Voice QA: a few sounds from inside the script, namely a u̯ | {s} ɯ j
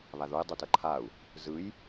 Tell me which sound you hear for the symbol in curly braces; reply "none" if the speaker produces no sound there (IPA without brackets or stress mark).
z